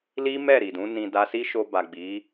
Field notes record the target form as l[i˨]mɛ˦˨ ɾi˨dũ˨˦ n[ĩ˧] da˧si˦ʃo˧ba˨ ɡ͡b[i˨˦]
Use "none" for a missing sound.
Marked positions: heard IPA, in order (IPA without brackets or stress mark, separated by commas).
i˦, ĩ˧, i˨˦